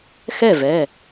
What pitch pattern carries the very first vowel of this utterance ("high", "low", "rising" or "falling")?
falling